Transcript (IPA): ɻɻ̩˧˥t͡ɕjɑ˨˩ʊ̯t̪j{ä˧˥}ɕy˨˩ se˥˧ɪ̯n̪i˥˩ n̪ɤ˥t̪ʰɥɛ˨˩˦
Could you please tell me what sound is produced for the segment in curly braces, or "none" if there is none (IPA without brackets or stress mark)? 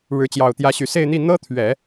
ä˧˥